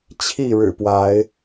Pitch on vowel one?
falling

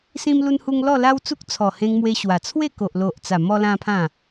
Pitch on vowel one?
high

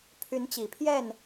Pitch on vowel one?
rising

